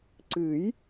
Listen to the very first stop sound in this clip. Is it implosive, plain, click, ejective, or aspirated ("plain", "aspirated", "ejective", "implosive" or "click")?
click